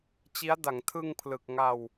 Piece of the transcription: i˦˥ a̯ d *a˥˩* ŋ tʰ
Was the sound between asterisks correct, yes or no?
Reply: no